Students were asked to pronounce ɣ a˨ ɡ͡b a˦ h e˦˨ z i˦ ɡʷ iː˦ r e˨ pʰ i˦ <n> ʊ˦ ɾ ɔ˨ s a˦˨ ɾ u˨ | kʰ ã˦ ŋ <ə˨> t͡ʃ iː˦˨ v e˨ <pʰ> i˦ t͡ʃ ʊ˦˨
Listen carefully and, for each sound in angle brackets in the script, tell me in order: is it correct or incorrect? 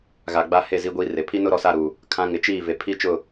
correct, incorrect, correct

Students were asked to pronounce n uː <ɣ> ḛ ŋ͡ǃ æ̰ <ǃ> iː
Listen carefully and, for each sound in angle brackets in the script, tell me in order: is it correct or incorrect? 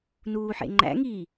incorrect, incorrect

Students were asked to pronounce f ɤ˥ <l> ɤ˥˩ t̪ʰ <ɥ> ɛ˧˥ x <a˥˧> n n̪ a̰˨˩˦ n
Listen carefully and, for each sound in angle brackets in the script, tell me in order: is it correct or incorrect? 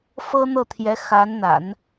incorrect, incorrect, incorrect

